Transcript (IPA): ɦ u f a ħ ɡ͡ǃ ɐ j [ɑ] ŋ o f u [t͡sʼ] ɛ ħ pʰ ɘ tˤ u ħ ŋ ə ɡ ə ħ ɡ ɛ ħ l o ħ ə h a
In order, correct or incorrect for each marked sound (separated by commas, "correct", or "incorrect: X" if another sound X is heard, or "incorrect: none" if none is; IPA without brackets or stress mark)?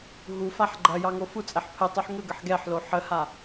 correct, correct